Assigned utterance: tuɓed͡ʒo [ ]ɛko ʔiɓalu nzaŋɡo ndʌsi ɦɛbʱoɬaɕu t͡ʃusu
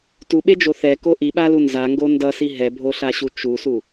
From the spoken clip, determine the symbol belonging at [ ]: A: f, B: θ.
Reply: B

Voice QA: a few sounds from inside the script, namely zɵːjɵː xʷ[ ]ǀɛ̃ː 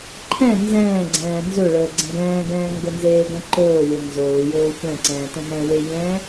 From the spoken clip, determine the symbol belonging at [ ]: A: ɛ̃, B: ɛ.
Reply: A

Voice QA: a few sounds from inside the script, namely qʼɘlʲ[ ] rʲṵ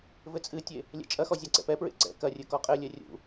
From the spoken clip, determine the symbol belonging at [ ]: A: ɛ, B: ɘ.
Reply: A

